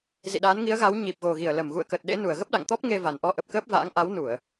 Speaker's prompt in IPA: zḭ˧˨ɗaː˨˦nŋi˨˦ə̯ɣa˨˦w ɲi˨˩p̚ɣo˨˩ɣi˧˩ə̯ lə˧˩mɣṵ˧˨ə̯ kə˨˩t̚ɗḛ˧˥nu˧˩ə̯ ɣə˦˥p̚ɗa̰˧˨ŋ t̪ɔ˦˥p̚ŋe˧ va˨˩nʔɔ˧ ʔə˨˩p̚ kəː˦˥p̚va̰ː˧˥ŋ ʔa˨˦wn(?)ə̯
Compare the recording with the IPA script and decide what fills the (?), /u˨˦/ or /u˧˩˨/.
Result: u˧˩˨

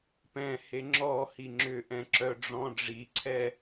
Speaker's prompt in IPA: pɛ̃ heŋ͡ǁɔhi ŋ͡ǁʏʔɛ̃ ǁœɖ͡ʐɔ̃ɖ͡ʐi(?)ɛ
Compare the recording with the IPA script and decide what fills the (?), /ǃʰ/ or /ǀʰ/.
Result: ǀʰ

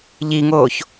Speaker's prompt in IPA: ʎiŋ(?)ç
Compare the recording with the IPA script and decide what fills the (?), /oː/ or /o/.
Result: oː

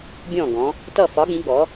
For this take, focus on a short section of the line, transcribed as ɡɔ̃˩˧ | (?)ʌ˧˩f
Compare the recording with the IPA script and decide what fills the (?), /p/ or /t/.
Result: t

